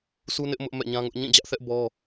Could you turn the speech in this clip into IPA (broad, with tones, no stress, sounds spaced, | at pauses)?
s u˦ n ɪ˦ ʔ m ʊ˦ ʔ m ɛ̰˦˨ ɲ ã˦ ŋ ʊ˦ ʔ ɲ ĩ˦˨ d͡ʑ ä˦ ʔ θ ɛ˦ ʔ b ɔ˦